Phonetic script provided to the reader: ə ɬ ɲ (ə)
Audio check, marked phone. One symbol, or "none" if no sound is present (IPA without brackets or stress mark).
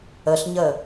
ə